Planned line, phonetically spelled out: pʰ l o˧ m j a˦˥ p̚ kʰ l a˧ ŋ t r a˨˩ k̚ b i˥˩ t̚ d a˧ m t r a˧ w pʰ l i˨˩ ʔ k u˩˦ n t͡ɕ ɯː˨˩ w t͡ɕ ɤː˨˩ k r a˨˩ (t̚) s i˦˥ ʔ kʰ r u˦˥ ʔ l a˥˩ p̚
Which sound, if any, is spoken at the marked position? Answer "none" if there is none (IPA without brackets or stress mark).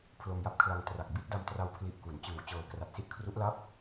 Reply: t̚